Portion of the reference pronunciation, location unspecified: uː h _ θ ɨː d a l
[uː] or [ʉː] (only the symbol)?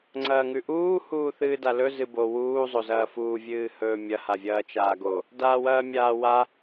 uː